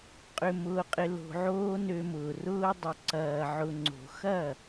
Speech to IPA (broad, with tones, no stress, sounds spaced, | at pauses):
qʼ ʏ˧ m ʊː˧ qʼ ɪ˧ l o̤˧ ʕ oː˦ n ø˧ m ʊː˨ r ʊː˧ dˤ ʏ˨ ǀ ɐː˨ ʕ ʊ˨ ŋ͡ǀ o̤˨ x ɐ˦˨